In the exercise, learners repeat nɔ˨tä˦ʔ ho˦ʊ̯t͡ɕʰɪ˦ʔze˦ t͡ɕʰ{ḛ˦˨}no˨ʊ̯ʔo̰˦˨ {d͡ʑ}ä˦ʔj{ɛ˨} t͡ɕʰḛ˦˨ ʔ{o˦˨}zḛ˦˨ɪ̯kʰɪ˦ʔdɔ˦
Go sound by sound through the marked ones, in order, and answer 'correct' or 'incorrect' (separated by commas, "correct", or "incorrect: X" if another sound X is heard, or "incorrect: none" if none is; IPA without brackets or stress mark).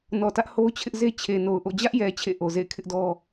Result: incorrect: e˨, correct, correct, incorrect: o˨